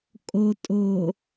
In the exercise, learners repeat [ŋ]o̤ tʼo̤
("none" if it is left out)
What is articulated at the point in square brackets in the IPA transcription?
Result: kʼ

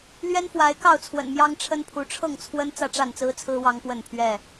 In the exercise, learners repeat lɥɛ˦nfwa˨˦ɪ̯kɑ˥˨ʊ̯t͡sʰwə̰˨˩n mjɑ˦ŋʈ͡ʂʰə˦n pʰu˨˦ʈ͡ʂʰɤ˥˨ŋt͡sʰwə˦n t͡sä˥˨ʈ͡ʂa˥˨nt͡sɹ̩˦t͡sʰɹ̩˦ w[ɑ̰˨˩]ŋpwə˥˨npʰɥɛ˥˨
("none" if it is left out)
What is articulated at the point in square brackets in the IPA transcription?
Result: ɑ˦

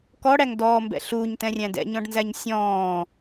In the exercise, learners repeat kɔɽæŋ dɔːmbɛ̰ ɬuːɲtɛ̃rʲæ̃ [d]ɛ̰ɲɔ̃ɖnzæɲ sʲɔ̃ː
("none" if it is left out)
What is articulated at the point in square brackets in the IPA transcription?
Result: d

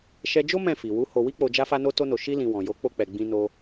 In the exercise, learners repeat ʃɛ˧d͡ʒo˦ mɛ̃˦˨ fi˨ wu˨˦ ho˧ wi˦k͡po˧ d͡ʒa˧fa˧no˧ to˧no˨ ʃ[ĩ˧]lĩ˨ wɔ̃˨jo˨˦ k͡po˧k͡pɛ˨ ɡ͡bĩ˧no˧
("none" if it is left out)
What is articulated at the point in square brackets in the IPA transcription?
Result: i˧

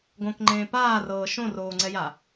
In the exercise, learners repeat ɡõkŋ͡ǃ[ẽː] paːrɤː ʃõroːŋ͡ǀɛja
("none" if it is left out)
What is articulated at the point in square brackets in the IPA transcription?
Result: ẽː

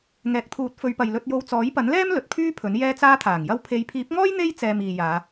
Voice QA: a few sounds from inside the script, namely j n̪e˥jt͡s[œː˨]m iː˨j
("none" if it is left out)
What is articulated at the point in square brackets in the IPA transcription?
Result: ɛː˨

